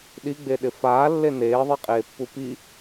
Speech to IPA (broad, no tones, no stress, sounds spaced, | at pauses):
ɗ i ɡ͡b e ɗ ɪ f aː lː e n eː ðˤ i qʼ eː pː u p i